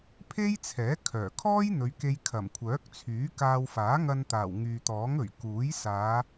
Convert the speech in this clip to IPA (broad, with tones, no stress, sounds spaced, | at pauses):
pʰ e˥ j t͡sʰ ɛː˨˥ kʰ œː˨˩ kʰ ɔː˥ j n̪ ɵ˨˧ ɥ k e˧ j kʰ ɐ˨˩ m kʷʰ œː˨˥ k̚ t͡sʰ yː˨˥ k aː˧ w f aː˨˥ ŋ ɐ˧ n t̪ aː˨˩ w ŋ yː˨ t̪ ɔː˨˥ ŋ ɵ˨˩ ɥ k uː˨˥ j s aː˨˧